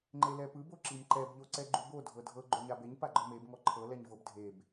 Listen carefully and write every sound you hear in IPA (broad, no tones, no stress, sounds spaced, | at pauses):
ŋ͡ǃ e l ɛ p ɯ b o ǁ i m ǃ ɛ b ʎ o ǀ ɛ ɡ͡ǃ u b o dʱ ɤ dʱ ɤ ɡ͡ǃ o ɲ a b e ɲ p a ɡ͡ǃ ɔ m e b ŋ ɔ ǃʰ ɤ l ɛ ɲ v ɤ b dʱ e b